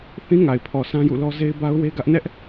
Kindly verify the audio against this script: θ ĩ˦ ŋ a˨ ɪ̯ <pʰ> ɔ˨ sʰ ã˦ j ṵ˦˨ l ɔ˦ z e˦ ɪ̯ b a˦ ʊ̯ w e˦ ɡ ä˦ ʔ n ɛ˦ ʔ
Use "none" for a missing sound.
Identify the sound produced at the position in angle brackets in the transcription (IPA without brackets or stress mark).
pʰ